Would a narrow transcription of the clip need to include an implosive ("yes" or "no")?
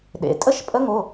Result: yes